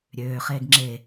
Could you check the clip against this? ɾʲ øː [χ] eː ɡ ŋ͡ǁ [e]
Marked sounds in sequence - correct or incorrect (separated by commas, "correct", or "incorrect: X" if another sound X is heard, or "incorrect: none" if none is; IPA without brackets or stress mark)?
correct, correct